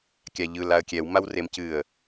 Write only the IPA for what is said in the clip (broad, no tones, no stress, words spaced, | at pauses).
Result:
kʲaʎɯl aə̯kʲɛw mawremcɨə̯